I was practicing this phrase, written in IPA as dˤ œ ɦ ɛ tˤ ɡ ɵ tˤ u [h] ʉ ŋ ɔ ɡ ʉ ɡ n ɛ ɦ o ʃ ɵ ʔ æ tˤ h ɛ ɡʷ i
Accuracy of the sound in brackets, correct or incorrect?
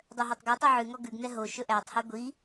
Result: incorrect